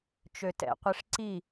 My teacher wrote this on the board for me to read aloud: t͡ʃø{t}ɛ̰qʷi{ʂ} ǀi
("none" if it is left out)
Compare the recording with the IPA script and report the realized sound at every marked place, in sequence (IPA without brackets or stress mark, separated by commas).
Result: t, ʂ